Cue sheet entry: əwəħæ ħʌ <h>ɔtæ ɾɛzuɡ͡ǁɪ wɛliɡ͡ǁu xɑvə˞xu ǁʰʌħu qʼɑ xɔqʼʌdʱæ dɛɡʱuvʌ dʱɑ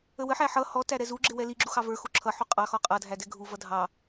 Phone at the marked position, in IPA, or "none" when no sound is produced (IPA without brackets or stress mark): h